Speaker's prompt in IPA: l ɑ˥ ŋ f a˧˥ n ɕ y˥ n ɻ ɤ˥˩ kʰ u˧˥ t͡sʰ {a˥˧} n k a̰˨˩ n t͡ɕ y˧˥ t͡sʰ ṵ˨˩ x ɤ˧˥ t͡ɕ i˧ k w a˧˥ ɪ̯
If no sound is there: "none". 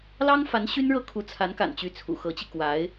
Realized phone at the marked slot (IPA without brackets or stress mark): a˧˥